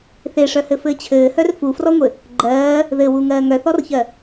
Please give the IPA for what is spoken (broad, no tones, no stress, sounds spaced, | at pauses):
θ e ʂ œ h ɘ f ɘː t͡ɕʰ ɘː h œ r f u f r ɔ ŋʷ ɘ | ɡ͡ǃ ɜː | ð ɘ w u ŋ ɜː ŋ œ θ ɔ r ç ɜ